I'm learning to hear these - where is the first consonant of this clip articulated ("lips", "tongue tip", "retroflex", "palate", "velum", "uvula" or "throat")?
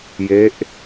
palate